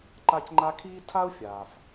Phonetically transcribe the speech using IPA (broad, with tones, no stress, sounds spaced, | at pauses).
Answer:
ǃ a˥ c ŋ͡ǃ a˦ kʰ iː˥ tʰ a˥ u̯ fʲ aː˩ f